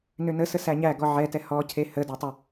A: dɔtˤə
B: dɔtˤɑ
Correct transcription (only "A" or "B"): A